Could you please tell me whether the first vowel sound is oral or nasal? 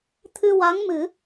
oral